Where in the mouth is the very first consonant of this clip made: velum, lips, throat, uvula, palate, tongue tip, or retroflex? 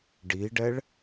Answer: retroflex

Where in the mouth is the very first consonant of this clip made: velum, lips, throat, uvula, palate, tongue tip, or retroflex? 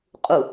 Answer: uvula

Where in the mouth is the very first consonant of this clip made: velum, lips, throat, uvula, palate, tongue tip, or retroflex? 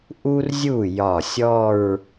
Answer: throat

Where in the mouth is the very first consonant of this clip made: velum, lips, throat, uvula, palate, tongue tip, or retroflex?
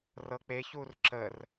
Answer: tongue tip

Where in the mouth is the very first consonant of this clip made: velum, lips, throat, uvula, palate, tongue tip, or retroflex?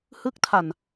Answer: throat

